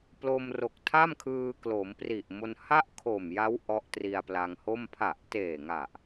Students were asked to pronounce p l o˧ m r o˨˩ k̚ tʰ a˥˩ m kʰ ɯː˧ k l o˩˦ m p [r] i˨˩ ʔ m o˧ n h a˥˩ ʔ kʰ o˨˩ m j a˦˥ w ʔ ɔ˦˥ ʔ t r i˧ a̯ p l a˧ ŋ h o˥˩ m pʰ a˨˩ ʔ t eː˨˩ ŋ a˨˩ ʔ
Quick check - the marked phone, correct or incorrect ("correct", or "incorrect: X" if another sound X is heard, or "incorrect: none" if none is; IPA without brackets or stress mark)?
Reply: correct